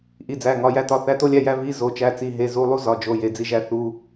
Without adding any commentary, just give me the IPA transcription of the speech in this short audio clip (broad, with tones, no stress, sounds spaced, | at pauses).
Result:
ʔ i˧˥˧ d͡z æ˧˥˧ ŋ ɒ˧˥˧ j æ˥ t ɒ˧˥˧ θ æ˧˥˧ t o˥ lʲ æ˧˥˧ j æ˥ v i˧˥˧ z o˧˥˧ t͡ʃ æ˧˥˧ t͡s i˧˥˧ ɦ e˧˥˧ z u˧˥˧ lˠ u˥ z ɒ˧˥˧ d͡ʒ o˧˥˧ j e˧˥˧ d͡z i˥ ʒ æ˥ θ u˧˥˧